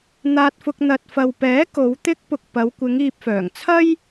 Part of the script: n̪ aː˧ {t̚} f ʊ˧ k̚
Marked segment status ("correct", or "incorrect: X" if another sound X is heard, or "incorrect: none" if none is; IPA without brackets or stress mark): correct